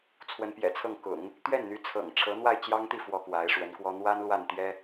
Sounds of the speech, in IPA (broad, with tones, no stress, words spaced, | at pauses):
t͡sʰwə˧˥npjɛ̰˨˩t͡sʰɤ˥˩ŋ kʊ̰˨˩˦ŋ | t̪ɥɛ˥˩nn̪y˧˥t͡sʰɤ̰˨˩ŋ ʈ͡ʂʰɤ˧˥n̪wa˥˩ɪ̯t͡ɕjɑ˥ŋt̪i˥˩ fwɔ˥kwa˧˥ɪ̯ʂwə˧˥nkwɔ˥ n̪wa˥n lwa˥˩nt̪jɛ˥